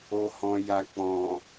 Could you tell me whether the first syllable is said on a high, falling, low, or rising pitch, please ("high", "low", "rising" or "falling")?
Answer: low